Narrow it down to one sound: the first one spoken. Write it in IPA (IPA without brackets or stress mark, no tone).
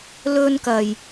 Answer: l